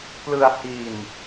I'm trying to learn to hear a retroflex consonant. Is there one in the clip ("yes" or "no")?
no